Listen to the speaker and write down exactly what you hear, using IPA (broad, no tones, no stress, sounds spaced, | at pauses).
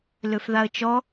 l ø f ð a ə̯ t͡ʃ ɔ